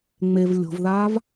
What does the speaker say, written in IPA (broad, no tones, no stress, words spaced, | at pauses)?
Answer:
ŋ͡mev lʲo̤vðaːv